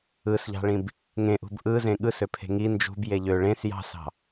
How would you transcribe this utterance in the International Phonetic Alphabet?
ɯ s ʎ ɑ̤ ɭ ĩ b | ŋ ẽ ʔ ṳ b ʔ ɯ z ẽ ɠ ɯ s ø pʰ e̤ ŋ i n d͡ʒ ṳ b j e ʎ ø ɭ ẽ s j ɑ̤ s ɑ̤

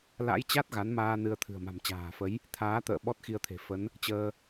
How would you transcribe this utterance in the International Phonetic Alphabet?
l a̰˧˥ j t͡ɕ a˦˥ t̚ ɣ a˨˦ n m aː˧ n ɨ˧ ə̯ t̪ʰ ɨ̤˨˩ ə̯ m a̤˨˩ m t͡ɕ a̤ː˨˩ f ə˨˦ j | t̪ʰ aː˨˦ t̪ ə̰ː˧˨ ɓ ɔ˦˥ t̚ x i˧ ə̯ t̪ʰ e̤˨˩ f ə˨˦ n | t͡ɕ əː˧

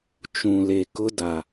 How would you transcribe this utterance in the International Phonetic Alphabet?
t͡ʃ ũ˨ l e˨ k ʊ˦ d a˨

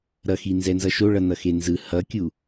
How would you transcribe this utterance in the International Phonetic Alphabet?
ɾ ʌ x i n z ɛ n z ʌ ʃ o ɭ ʌ n ʌ x e n z ɯ h ʌ kʲ u

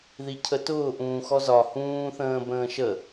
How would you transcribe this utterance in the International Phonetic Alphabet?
ð i cʰ ə t ʊː ʔ ũː x ɔ z ɒ h ũː θ ə̃ː b ə̃ː ʃ ə

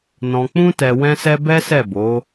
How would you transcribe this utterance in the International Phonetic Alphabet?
n ɔ̃˧ k͡p ũ˦ t ɛ˧ w ɛ̃˦ s ɛ˦ b ɛ˦ s ɛ˦˨ b o˨˦

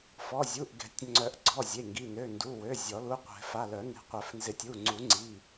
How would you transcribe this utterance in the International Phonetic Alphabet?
f ɔ˩˧˩ zʲ u˩˧˩ ʔ ɡ ɛ̤˨˩˦ tʲ ŋ͡ǀ œ˨˩˦ ʔ ɡ͡ǀ ɔ˩˧˩ zʲ e˩˧˩ ŋ ɡ i˩˧˩ n ø˩˧˩ n d u˩˧˩ w ø˩˧˩ zʲ ɔ˨˩˦ l u˩˧˩ qʷ ɛ̤˨˩˦ f a˩˧˩ l œ˨˩˦ n e̤˩˧˩ qʷ œ˨˩˦ f n z ɪ˨˩˦ tʲ u˩˧˩ ŋ͡ǀ u˨˩˦ ŋ͡ǀ i˩˧˩

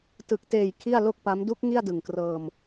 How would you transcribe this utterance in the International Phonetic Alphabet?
t ɯ˨˩ k̚ t eː˨˩ j kʰ i˥˩ a̯ l o˥˩ k̚ p a˦˥ m d u˦˥ k̚ ŋ i˥˩ a̯ d ɯ˨˩ ŋ k r ɤː˧ m

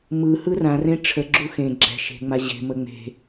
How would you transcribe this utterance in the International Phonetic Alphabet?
m ɯ h ɯ r ã r ẽ ʈ͡ʂʰ ə ɡ͡ǁ u x ẽ ɡ͡ǁ ɛ̤ ʃ e̤ ŋ͡m a ʑ e̤ m ə ŋ͡m e̤

